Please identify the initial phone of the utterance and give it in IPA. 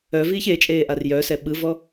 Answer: œ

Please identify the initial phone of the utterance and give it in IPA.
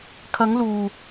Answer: kʰ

